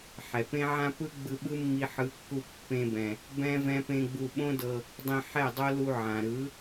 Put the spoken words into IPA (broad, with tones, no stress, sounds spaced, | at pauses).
ħ ɛ˨ p ẽ˦ ʕ ã˦ p ɯ˦ ɡ͡b ɯ˧ ɓ ɯ˦ mː i˧ ħ ɯ˨˦ kː u˧ pː ẽ˧ b ɛ̃˨ | b ɛ̃˦ v ɛ̃˦ p ẽ˦ ɡ͡b u˧ ɓ õ˦ d ɤ˧ | dˤ ĩ˧ ħ ɛ˦˨ dˤ o˦ l u˧ ʕ ã˨ ɾ ɯ˨˦